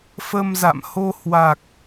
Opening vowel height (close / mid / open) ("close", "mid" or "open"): mid